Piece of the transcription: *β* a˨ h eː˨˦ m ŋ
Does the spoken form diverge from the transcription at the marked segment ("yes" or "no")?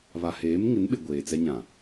no